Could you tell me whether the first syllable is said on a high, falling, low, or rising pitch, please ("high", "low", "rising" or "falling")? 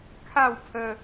falling